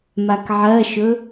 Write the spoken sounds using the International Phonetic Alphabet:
makʕɜʃɵ

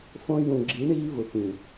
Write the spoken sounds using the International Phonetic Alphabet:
fõ˧jũ˨ɡ͡ǁi˨˦ ɳiː˧vʊ˨ pĩ˨

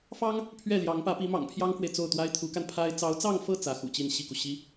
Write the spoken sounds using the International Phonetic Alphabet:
fɑ˥ŋ | pʰɥɛ˥˩ ljɑ˧˥ŋpä˧˥pi˧˥ mɑ̰˨˩ŋpʰjɑ˥ŋkwe˨ɪ̯ t͡so˥˩ʊ̯t̪wa˥ɪ̯ t̪ʰu˧˥ka˧npʰa˥ɪ̯ t͡sɑ˧˥ʊ̯t͡sɑ˥˧ŋfɤ˥˩ t͡sä˧˥xṵ˨˩ t͡ɕi˥˧n ɕi˥˩ku˩ ɕi˧˥

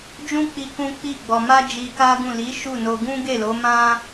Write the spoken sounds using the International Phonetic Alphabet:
d͡ʒũ˦k͡pi˧ kũ˦k͡pi˦˨ɡ͡bɔ˧ ma˦d͡ʒi˧ka˦ ɡũ˦˨ li˨˦ ʃu˦˨no˧ ɡũ˦ɡe˦˨lo˨˦ mã˦

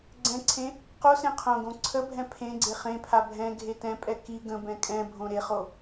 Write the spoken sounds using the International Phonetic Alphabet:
ɡ͡ǀɛ̃ǀʰẽ | qo sẽqʰõɡõ ǀʰəbʱɛ̃ pʰẽɡ͡ǀe χẽpʰa bʱɛ̃ ɡʱetɛ̃pʼɛ ki ɡə̃bɛ̃ kʼɛ̃ bʱõɾeχo

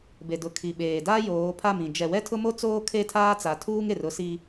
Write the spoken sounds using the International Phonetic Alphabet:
be˨dʊ˨ kʰi˨ ɓeː˨da˦ joː˨˦pʰa˦˨mĩ˨ d͡ʒɛ˨wɛ˦tʰʊ˦mo˦ t͡soː˦kʰe˦˨tʰaː˦t͡sa˨ tʰuː˦ŋe˨r ʊ˦si˦

